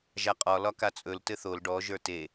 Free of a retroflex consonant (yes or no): no